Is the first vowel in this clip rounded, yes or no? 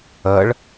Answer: no